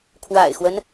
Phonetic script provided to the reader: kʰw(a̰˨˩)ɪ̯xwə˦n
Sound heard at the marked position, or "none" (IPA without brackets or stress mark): a̰˨˩